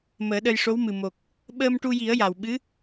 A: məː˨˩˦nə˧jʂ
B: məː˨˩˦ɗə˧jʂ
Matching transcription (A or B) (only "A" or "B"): B